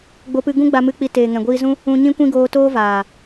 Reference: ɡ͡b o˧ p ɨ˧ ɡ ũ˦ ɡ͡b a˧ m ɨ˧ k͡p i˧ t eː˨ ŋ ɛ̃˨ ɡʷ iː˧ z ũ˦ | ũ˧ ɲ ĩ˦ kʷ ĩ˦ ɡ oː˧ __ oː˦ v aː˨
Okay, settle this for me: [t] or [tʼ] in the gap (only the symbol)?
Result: t